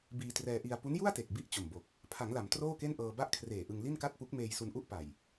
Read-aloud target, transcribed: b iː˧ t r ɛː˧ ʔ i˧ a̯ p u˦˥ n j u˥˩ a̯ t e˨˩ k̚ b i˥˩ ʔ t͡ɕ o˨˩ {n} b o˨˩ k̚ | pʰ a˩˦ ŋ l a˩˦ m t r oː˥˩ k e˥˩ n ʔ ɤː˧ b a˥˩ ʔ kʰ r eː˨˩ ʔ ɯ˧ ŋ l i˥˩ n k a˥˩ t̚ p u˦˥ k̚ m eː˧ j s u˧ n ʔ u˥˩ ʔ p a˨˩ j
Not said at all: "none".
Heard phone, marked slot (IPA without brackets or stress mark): m